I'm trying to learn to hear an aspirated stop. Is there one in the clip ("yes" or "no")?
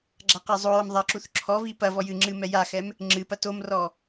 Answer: yes